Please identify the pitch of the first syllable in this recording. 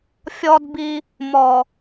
high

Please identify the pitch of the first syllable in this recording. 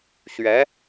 rising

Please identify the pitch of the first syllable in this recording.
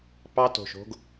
high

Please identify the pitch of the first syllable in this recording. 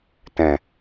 low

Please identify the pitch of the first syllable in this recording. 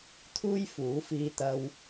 high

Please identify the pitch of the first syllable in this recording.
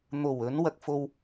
low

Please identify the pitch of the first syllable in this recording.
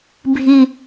low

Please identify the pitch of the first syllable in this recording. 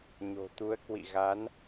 low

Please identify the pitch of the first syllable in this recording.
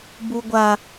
high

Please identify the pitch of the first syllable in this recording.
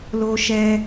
high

